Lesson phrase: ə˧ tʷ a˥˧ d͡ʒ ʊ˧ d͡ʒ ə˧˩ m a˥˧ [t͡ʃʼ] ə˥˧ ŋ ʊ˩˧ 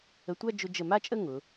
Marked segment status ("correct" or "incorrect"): correct